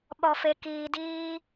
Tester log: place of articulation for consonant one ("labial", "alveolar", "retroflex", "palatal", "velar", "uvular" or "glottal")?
labial